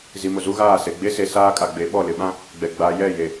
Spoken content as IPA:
z i˨ m ʊ˨ z u˦ ɣ aː˦˨ s e˨ ɡ͡b e˦ s e˨ s aː˦ kʼ a˨ ɡ͡b e˨˦ ɓ ɔ˦˨ l ɪ˨ ɓ ã˦ | ɡ͡b ɛ˨ ɡ͡b a˨ j ɛ˦˨ j e˨

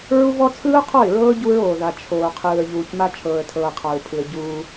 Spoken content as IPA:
ɹ u˦ v ɔ˦ t͡sʰ ɯː˦ ʊ̯ qʰ ɔ˦˨ ɪ̯ ɹ ɤː˦ ɟ u˦ ɹ oː˨ ð a˨ t͡ʃʰ oː˨ qʰ ɯː˨ ə̯ ʎ uː˨ c m a˦ t͡ʃʰ ɤː˨ ə̯ tʰ ɤː˨ qʰ a˨ ɹ pʰ ɯ˨ ə̯ ɟ uː˦

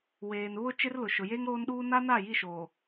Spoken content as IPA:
w eː˨ n β ʊ˦ t͡ʃ ɪ˦ r l ʊ˨ ʃ ʊ˨ j eː˦ ŋ ɾ oː˦ n ɗ uː˦ n a˦ n a˦˨ j i˦˨ ʃ oː˨

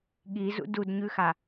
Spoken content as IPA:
ɠ i z ṵ d u d ɲ ʉ x a

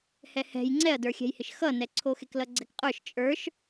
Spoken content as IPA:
h ɛ h ɛ̤ j ŋ͡ǀ ɛ ɐ̯ d ə˞ xʲ ɛ̤ j h ɪ ʃ x ʌ n ɛ ǀʰ o x e k l ʌ ɡ͡ǀ ɛ k qʼ ə˞ ʃ t͡ʃʼ ə˞ ʃ

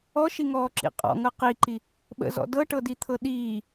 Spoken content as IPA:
ɔ ʃ i ŋ ɔː ǁ ḭ qʼ ɔ̰ ŋ ɤ q i ǃ i | ɓ ə̰ z ɔ̰ d ɤ ʈ ɤ d i t̪ʰ ɤ ɗ iː

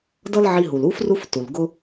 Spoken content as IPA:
d ʌ˥ l ʕ i˧ ɦ u˩ l u˥ f r u˥ f t u˩ l ɡ ʊ˥

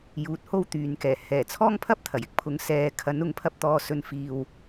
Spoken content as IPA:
j uː˨ t̚ h o˧ w t̪ yː˨ n k ɛː˨˩ h ɛː˨˩ t͡sʰ ɔː˥ ŋ pʰ ɐ˥ p̚ t̪ʰ ɐ˨˩ j ɪ˧ k̚ pʰ ʊ˨˧ ŋ s ɛː˨˧ kʰ ɐ˨˥ n ʊ˨˥ ŋ pʰ ɐ˧ p̚ t̪ ɔː˧ s ɵ˧ n f iː˧ w

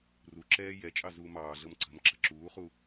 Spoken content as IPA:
r u ǁ ɛː j ɛ t͡ʃʼ ɑ z uː m ɑː ɮ ɤ m ǀ ə̤ m ǁ ə̤ ǁ uː χ u

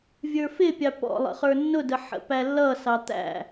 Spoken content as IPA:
vʲ ə˞ f ɪ pʲ ɑ p ɔ̰ lˠ ə̰ χ ə˞ nː ʊ d ə ħ ə̰ p æ lː ʌ s ɑ t̪ æ̰

